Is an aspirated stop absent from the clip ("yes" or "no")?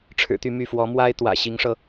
no